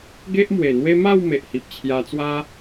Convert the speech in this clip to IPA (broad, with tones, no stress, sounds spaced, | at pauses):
ɡ e˦ ʔ m w e˨˩ n̪ w e˦ m a˥˧ w m e˨ ʔ h i˨ p̚ t͡ɕʰ j a˧ t͡s w a˦